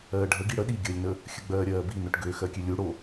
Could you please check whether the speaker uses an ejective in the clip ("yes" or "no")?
no